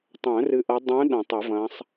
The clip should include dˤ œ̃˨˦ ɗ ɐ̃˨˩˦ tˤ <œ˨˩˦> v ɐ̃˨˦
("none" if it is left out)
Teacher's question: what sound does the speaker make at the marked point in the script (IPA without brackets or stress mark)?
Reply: œ˨˩˦